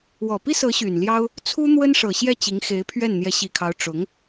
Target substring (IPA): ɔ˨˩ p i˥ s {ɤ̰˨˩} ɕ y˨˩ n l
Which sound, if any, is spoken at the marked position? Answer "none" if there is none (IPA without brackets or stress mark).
ɤ˧˥